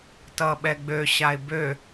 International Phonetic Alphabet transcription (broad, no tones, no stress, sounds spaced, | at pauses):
t ʌ ɓ ɛ ɡ͡b ø ɕ a ɪ̯ b ø